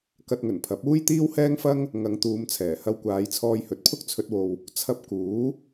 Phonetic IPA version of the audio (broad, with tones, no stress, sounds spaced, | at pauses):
k ɐ˧ t̚ ŋ ɵ˨˩ n pʰ ɐ˨˥ p̚ uː˥ j t̪ iː˥ w h ɛː˥ ŋ f ɐ˥ ŋ | ŋ ɐ˨˧ ŋ t̪ uː˨˧ m t͡sʰ ɛː˨˩ h ɐ˧ w kʷ aː˨˧ j t͡sʰ ɔː˧ j h ɵ˨ t̚ pʰ ʊ˥ k̚ t͡sʰ ɵ˧ t̚ w o˨ w | t͡sʰ ɐ˧ p̚ k uː˨˥